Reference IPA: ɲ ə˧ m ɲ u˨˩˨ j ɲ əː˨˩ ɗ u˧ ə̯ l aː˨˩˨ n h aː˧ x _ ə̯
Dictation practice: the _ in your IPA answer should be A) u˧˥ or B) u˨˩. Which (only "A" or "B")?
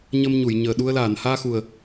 B